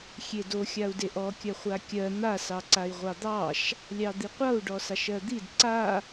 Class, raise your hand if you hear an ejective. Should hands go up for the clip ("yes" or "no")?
no